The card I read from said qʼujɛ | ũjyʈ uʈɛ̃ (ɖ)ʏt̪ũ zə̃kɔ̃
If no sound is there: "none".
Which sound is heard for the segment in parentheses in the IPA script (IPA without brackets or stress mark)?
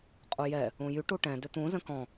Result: d